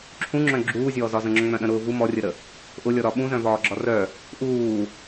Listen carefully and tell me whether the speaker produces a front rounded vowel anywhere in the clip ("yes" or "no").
yes